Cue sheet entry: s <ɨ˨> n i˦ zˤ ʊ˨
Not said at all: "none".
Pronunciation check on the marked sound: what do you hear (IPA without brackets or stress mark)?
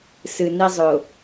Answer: ɨ˨